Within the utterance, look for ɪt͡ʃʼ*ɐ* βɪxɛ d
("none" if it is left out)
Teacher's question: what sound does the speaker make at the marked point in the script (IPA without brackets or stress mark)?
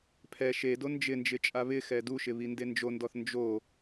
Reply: a